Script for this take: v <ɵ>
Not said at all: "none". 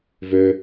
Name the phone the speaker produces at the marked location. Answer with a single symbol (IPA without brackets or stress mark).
ø